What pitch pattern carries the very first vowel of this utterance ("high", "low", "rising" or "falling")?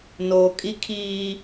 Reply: low